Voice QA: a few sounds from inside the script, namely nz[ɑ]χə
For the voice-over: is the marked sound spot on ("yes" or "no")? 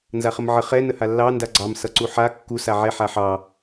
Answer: no